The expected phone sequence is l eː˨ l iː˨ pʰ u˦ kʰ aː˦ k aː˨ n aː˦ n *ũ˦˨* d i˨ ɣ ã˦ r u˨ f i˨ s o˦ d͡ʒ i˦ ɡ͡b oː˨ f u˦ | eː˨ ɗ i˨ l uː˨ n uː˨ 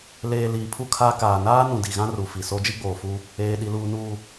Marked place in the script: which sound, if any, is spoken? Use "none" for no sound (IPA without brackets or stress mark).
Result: ũ˨